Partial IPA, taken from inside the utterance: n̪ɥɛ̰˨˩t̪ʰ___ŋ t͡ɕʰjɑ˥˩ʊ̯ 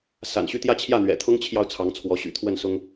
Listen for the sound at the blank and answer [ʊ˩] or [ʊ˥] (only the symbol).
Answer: ʊ˥